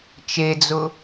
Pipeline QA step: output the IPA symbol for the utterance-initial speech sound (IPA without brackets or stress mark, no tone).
t͡ʃ